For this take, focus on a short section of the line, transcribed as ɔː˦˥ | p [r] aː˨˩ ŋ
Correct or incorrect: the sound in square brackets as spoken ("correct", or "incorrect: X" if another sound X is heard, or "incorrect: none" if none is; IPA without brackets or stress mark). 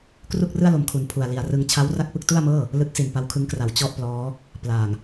incorrect: l